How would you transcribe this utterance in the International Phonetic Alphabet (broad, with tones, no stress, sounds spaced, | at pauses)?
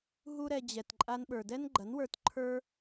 ɦ u˦ ɾ ɛ˧ d͡ʑ ɛ˨ t ǃʼ a˧ n ɓ ə˞˨ d ɛ˦ n ɡ͡ǃ ɐ˨˦ n w ə˞˧ t ǃʰ ə˞˦